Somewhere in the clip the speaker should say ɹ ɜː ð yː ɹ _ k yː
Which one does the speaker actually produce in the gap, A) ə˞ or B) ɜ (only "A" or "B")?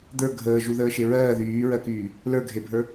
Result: B